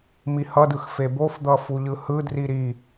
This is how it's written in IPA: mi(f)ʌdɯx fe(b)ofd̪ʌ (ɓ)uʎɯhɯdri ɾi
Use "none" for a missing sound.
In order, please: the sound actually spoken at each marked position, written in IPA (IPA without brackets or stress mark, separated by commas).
h, b, f